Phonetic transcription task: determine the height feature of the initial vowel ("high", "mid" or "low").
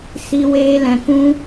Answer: high